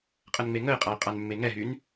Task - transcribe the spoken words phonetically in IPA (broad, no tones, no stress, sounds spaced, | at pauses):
qʼ ə n ŋ͡m e ŋ ə ɪ̯ qʼ a ɪ̯ qʼ a n mː e ŋ ɛ ɦ y n